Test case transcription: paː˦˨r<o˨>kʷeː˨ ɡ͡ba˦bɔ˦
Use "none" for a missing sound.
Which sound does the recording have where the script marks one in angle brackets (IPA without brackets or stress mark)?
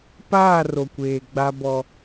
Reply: o˨